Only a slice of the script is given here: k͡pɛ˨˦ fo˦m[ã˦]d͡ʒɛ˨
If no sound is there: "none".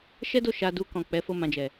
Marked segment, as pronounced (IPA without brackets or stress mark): ã˧